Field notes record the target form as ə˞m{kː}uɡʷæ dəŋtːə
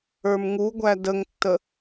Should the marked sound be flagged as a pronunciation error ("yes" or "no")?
yes